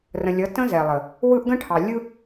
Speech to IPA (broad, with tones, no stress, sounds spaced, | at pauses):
r ə̃˨ lʲ ʌ˨˦ t ə̃˦ z ɛ˨ lˠ ə˨ | w ɯ˦ ʔ ɡ ə̃˦ ʈʰ ɑ˨ lʲ ɯ˦